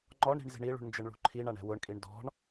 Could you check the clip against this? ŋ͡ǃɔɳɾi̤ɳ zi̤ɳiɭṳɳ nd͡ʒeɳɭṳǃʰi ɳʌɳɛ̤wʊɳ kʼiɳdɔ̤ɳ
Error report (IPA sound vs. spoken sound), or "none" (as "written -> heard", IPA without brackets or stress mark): ʌ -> a